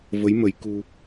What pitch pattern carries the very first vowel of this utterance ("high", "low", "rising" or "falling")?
rising